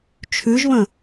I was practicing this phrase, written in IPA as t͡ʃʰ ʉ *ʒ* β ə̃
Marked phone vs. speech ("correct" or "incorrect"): correct